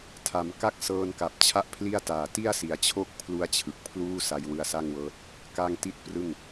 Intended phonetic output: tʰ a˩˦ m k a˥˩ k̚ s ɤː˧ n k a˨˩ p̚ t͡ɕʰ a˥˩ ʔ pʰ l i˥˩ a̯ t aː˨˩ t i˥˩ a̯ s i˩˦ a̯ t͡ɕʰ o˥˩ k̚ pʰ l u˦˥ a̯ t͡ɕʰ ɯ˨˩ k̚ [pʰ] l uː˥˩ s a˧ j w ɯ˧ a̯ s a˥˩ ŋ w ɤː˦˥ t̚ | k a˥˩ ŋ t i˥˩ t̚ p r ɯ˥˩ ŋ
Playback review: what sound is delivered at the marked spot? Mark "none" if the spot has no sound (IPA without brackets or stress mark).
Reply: pʰ